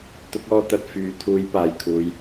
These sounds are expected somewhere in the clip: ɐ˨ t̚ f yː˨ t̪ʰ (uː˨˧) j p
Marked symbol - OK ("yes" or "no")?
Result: yes